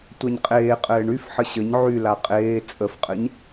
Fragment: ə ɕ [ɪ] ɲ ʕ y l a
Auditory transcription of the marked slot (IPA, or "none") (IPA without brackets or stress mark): ə